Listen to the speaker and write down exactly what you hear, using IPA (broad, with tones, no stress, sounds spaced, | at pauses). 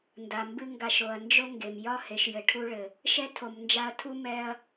n d a˩ m b ɨ˦ ŋ ɡ a˨ ʃ o˩ ɐ̯ n d͡ʒ o˥ ŋ ɡ e˩ m j ɒ˥ h e˨ ʃ j ɘ˨ ʈʰ u˥ ɭ ɘ˩ | ʃ ɛ˥ tʰ o˨ m n d͡ʒ a˦ ɐ̯ tʰ u˥ m ɛ˦ ɐ̯